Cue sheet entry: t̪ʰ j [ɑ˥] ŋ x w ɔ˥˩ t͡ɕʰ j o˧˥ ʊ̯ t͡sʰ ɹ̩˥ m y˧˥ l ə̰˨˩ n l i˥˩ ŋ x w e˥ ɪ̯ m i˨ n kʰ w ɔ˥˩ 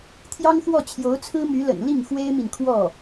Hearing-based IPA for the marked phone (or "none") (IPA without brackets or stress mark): ɑ˥